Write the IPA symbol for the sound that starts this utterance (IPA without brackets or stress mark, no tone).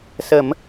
s